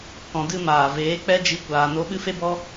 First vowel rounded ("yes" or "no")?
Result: yes